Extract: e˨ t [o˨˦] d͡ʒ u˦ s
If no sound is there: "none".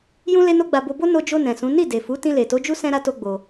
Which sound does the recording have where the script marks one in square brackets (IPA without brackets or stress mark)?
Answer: o˨˦